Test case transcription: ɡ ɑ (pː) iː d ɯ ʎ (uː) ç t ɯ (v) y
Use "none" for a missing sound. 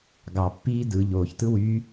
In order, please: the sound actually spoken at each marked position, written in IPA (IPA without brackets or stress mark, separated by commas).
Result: pː, oː, w